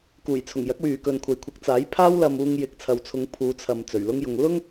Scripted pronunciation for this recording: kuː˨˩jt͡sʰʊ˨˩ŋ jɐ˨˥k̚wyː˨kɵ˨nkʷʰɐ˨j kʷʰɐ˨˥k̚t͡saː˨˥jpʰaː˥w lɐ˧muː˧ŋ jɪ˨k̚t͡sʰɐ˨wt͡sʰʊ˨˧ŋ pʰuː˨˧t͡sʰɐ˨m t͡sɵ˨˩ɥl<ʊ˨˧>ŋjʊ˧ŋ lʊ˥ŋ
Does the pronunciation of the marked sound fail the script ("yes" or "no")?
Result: yes